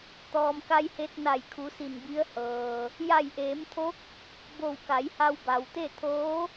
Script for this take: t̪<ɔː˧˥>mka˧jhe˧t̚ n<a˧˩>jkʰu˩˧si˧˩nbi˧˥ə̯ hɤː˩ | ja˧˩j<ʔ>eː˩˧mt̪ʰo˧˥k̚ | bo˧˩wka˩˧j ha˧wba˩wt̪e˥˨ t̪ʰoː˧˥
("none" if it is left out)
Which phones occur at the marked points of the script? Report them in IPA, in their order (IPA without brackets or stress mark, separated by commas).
ɔː˩, a˧˩, ʔ